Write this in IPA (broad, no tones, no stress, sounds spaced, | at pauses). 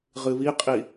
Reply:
ʁ ɨ β i qʼ i